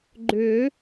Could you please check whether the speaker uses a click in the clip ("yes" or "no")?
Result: yes